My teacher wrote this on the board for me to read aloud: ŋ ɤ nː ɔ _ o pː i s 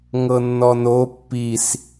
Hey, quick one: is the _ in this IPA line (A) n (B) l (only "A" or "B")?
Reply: A